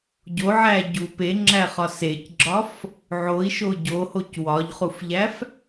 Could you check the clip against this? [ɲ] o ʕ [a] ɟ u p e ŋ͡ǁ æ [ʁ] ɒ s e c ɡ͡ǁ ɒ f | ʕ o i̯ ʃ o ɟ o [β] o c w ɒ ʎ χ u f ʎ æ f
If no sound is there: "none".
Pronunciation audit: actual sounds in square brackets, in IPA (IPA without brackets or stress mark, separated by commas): ɟ, æ, χ, h